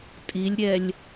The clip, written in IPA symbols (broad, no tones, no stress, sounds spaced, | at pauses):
tʼ i lʲ ɾʲ ɛ lʲ